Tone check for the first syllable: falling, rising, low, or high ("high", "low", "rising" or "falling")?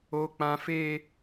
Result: high